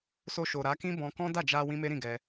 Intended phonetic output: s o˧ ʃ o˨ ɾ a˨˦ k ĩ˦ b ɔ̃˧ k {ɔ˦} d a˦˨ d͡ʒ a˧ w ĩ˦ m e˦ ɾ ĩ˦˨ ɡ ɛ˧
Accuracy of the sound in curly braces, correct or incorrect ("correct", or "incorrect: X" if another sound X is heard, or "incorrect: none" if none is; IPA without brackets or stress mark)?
incorrect: ɔ̃˦